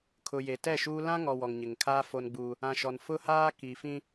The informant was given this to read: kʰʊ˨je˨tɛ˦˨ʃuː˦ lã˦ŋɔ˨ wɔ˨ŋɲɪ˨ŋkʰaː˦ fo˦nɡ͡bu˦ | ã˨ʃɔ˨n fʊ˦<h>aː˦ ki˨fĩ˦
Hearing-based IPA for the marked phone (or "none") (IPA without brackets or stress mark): h